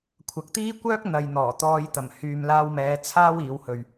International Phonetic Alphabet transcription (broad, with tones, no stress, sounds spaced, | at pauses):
kʷʰ ɐ˨ k̚ t̪ iː˥ kʷ œː˥ k̚ n̪ ɐ˨ j n̪ ɔː˨˩ t̪ ɔː˧ j t̪ ɐ˨˩ m h yː˨ m l aː˧ w m ɛː˨˧ t͡sʰ aː˥ w iː˨˧ w h ɵ˨ ɥ